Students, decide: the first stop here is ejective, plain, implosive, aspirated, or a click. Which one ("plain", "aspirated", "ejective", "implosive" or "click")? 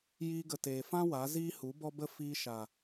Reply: plain